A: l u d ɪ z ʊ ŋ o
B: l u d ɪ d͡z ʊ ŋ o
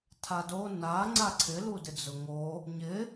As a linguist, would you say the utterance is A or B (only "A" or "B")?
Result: B